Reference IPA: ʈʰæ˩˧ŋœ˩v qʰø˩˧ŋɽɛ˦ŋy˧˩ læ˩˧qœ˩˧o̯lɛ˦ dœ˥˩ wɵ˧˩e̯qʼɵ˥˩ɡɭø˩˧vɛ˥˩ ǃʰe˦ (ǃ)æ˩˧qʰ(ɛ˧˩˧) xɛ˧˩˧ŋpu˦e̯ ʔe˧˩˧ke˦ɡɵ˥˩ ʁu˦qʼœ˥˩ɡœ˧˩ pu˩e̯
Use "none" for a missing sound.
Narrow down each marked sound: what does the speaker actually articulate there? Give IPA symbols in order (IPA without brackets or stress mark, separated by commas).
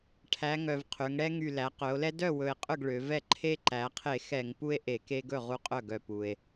ǃ, e˧˩˧